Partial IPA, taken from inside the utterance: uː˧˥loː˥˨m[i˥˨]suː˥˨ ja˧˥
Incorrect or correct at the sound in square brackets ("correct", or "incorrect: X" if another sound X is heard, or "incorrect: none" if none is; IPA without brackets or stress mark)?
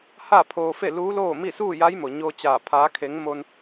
correct